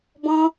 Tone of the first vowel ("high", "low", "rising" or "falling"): high